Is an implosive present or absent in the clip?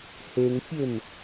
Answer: absent